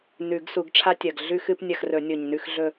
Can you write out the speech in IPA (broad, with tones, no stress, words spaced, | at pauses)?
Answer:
nʉ˨˩˦ɡsu˨˩˦ɡʈ͡ʂʰa˦tʲɐ˨˩ɡ ɮʉ˦xɨ˦pnʲɐ˦˨xrɵ˨˩˦ nʲo˨˩ɲnʉ˦˨xɮɵ˦˨